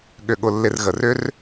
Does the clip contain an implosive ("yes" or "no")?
yes